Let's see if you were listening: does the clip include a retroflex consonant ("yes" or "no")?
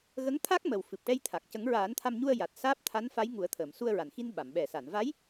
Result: yes